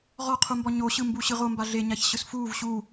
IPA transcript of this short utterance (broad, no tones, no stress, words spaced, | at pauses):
ʁɔqʰumbɔ ɲoɕɯ mbuɕɯʁomba ɮeɲaç ɕɯsfuːv ɕu